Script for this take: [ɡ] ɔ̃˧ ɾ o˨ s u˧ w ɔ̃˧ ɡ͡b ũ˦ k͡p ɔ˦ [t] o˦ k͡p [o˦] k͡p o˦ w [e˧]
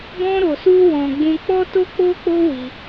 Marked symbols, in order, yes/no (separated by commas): yes, yes, yes, no